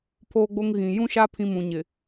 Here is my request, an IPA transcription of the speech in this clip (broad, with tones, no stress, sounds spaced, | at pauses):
pʰ oː˦ ɡ͡b o˦ ŋ ɣ ĩ˨ j ũ˦ ʃ a˦ pʰ ĩ˦ m ũ˨ ɲ ɪ˨